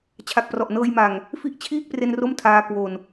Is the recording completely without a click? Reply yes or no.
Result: yes